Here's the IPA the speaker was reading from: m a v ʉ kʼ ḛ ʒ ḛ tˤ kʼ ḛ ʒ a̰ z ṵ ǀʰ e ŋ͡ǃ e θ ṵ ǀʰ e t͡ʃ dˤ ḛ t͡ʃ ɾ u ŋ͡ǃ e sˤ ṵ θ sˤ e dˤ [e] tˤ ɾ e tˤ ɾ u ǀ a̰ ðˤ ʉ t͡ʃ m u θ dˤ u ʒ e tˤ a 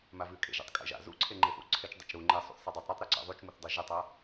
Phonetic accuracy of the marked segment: correct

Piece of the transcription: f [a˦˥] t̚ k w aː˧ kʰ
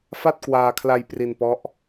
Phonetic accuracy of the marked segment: incorrect: a˥˩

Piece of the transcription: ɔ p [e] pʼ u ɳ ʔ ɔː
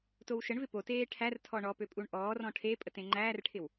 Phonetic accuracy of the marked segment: incorrect: ø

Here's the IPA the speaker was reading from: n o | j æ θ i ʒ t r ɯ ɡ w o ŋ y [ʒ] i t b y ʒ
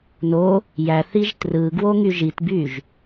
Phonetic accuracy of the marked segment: correct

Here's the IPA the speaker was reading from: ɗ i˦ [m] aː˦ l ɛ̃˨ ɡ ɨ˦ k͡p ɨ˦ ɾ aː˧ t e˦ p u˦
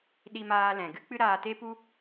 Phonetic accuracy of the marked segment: correct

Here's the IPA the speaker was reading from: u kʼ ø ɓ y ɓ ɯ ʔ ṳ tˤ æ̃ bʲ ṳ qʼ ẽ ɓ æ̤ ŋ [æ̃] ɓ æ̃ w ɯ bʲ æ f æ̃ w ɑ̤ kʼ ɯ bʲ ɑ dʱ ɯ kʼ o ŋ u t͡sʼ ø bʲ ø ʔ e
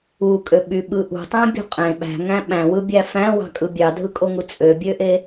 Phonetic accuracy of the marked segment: correct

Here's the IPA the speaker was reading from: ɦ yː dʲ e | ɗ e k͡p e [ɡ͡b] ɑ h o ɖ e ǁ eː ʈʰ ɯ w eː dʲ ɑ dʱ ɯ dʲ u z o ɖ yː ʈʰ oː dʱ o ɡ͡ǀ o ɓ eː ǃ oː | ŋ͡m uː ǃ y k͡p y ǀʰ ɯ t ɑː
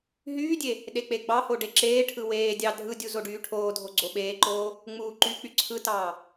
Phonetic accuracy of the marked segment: correct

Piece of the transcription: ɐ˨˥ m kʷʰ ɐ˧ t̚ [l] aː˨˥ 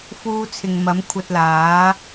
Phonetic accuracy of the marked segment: correct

